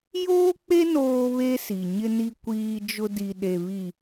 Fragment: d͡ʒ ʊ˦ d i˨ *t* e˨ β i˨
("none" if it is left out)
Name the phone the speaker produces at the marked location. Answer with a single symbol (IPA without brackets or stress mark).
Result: ɗ